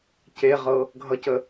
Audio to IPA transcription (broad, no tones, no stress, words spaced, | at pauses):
ceʁɤ | ɡʱʌcə